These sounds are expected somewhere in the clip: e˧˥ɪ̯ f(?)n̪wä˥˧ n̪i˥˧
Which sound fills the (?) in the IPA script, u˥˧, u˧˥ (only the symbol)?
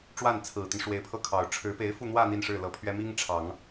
u˥˧